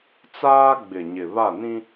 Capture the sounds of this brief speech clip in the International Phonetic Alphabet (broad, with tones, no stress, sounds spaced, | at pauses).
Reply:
t͡s aː˦ ɡ͡b ɪ˨ ɲ ɪ˨ β a˦˨ n ĩ˦